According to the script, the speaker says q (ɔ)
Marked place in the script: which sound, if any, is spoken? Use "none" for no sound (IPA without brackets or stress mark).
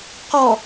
ɔ